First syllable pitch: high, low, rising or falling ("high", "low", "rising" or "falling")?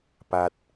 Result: low